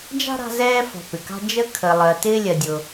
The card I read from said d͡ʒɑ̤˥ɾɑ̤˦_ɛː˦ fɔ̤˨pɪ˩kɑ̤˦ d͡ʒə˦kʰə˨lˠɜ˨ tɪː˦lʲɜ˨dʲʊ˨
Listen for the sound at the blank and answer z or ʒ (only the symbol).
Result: z